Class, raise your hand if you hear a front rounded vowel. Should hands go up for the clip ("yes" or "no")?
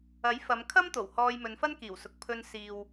no